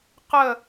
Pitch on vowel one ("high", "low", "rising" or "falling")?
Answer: falling